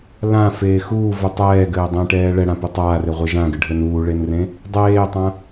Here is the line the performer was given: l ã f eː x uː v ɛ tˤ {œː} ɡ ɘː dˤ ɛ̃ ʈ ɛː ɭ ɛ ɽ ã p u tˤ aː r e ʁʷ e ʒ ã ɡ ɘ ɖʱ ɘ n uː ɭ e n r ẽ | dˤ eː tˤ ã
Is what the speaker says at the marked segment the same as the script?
no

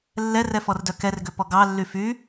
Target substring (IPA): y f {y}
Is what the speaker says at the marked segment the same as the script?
yes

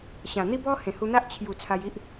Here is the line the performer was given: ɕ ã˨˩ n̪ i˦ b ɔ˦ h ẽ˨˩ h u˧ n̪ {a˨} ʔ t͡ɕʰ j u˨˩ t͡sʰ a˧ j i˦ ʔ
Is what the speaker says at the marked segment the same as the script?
no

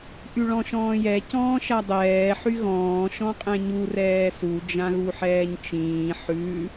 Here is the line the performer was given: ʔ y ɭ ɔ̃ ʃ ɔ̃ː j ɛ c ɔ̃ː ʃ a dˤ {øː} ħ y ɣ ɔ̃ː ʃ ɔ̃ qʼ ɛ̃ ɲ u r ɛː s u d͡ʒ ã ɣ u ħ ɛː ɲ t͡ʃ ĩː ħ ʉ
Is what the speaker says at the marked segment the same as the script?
no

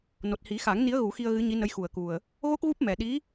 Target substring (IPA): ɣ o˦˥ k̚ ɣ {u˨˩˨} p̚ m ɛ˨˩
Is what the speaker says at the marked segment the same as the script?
no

